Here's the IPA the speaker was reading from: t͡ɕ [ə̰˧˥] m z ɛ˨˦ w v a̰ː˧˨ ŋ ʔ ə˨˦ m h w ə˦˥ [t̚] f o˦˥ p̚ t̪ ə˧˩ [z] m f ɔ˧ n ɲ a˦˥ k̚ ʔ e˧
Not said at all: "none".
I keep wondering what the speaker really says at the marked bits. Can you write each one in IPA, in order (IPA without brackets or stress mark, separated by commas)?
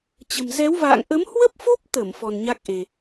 ə̤˨˩, p̚, none